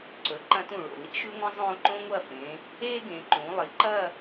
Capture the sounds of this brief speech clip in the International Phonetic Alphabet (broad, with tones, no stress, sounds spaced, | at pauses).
ǀ ɵ˩˧ ǃ ɐ̃˧ t ũ˧˩ ɭ o̰˧˩ l ḭ˥ ʃ ʉ˥ ŋʷ ɐ̃˥ zˤ õː˧ ǃ õ˥ ŋʷ ɐ˥˧ f ẽ˩˧ | eː˥ ɡ ẽ˩˧ ǃ ũ˩˧ lˠ i˩˧ ǃ ɐ˥˧